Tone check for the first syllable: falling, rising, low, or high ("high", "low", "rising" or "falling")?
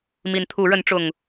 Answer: rising